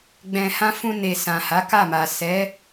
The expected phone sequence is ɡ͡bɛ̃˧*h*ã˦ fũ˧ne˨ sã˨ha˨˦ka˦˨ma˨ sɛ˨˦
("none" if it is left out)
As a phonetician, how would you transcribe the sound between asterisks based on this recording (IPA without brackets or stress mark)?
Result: h